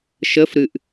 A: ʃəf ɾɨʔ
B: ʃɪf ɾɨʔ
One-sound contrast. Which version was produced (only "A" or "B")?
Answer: A